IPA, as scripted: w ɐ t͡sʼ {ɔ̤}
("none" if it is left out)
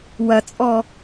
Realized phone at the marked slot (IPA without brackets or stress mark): ɔ